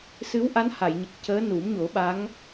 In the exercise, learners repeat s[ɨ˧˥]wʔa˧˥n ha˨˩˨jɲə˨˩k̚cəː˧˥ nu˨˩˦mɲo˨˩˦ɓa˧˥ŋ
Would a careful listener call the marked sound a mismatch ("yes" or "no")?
no